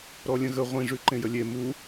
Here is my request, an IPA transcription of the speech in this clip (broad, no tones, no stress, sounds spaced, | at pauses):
ɾ ɔ lʲ ə̃ ɣ ə ʁʷ ĩ ʐ ʉ ǃ ẽ j ə lʲ e m u